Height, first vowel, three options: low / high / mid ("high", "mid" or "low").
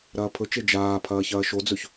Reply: low